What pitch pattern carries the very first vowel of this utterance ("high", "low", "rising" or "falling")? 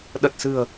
low